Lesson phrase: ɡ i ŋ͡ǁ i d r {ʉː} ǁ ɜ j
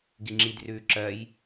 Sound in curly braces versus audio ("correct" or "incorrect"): correct